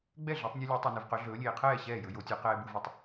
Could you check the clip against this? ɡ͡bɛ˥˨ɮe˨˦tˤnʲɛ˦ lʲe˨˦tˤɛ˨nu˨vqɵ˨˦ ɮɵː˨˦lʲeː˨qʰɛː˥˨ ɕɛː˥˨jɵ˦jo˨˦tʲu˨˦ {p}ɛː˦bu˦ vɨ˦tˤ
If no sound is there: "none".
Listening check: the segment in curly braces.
q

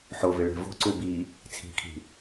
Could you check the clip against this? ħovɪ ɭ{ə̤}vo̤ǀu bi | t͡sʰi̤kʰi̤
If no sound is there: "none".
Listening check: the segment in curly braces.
ɛ̤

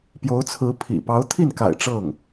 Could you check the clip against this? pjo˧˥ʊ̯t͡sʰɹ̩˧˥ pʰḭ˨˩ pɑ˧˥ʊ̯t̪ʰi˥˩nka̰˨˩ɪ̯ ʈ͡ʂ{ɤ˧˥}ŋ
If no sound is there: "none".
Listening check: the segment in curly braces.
ɤ˥˩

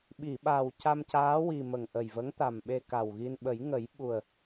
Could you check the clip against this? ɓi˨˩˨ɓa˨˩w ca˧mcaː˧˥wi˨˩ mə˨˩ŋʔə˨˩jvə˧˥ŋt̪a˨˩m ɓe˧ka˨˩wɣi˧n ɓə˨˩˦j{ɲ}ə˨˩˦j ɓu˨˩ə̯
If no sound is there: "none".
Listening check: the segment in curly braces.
ŋ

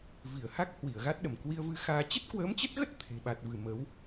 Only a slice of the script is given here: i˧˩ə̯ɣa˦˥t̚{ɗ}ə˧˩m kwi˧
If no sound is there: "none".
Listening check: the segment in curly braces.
ɗ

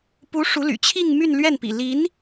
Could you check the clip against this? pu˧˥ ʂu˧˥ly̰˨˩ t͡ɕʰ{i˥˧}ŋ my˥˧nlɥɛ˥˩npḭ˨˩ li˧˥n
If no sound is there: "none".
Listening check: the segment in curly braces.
i˥˧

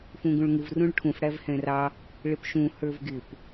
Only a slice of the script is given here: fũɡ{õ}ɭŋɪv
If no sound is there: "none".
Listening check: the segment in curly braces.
ũ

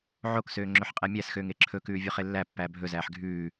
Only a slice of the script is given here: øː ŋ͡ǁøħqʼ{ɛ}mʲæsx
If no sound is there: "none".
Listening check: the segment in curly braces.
ɛ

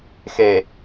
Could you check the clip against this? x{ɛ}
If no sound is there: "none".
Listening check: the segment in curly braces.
e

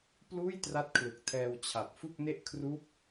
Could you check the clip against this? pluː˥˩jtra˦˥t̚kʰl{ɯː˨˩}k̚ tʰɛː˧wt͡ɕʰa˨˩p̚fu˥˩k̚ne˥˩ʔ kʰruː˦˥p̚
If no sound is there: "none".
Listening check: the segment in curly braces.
ɯ˨˩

